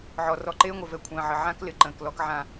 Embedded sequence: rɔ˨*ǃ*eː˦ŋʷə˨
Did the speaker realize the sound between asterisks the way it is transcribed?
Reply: yes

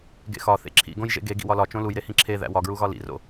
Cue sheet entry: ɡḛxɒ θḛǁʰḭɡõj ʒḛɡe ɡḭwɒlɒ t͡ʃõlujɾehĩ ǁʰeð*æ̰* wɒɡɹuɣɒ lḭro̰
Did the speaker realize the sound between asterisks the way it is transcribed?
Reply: yes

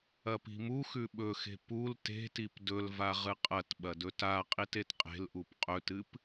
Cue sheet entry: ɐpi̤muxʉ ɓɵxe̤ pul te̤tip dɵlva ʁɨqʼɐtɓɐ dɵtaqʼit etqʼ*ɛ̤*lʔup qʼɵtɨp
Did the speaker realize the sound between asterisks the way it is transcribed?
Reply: no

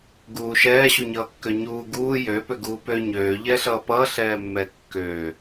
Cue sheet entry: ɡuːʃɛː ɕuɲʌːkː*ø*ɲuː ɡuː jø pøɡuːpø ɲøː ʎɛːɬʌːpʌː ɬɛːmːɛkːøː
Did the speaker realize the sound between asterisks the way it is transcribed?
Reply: yes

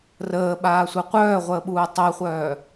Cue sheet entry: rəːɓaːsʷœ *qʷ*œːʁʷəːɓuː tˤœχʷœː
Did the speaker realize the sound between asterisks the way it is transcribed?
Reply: yes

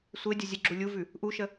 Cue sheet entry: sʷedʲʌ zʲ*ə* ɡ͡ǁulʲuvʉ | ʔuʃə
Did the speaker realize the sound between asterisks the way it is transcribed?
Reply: yes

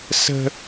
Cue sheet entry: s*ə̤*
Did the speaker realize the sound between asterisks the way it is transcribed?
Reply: yes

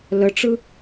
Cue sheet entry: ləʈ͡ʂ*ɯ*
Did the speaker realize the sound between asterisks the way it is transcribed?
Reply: yes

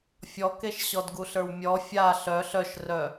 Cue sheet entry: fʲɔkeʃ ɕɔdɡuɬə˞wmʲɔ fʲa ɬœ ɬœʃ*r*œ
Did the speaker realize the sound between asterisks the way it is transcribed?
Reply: yes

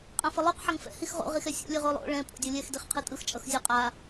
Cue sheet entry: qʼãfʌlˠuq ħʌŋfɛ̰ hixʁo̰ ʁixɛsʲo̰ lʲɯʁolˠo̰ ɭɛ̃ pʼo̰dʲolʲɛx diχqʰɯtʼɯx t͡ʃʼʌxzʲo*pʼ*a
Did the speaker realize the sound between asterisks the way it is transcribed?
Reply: no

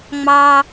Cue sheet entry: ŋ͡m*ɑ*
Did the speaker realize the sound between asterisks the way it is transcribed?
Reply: yes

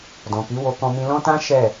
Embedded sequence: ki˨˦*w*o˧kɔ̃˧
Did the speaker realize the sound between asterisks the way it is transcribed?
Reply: yes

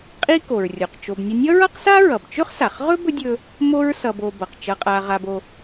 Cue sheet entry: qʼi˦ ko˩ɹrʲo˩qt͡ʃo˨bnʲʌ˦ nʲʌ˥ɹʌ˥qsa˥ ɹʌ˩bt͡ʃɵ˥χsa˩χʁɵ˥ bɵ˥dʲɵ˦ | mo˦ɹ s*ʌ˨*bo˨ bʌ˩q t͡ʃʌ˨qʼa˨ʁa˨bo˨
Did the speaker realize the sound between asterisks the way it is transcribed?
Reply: yes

